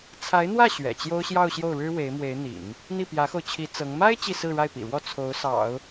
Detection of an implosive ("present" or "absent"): absent